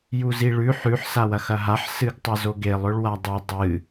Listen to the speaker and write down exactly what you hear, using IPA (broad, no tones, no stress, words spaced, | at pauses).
juziɭʉ ħʉħ sawɐxɐɦaħ sɨɡtˤɐzoɡelˠ ɵɭwadˤɵ dˤɨ